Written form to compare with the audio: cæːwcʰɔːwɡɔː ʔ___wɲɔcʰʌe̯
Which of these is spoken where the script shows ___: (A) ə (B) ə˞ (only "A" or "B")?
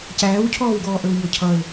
B